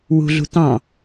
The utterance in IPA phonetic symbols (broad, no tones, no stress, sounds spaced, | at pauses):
w ṳ ɮ ṳ t̪ ɑ̃